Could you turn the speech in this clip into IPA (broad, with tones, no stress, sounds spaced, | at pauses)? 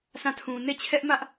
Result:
sʰ ã˦˨ tʰ ũ˨ n e˦˨ t͡ɕʰ ɛ˦ ʔ m ä˦ ʔ